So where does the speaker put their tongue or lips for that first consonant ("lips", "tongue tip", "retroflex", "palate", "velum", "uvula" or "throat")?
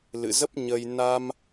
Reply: tongue tip